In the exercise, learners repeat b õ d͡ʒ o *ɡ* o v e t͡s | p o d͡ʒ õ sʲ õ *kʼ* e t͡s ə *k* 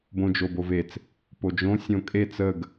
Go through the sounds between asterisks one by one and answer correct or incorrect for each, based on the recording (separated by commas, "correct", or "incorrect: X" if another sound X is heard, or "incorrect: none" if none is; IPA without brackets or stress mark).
incorrect: b, correct, incorrect: ɡ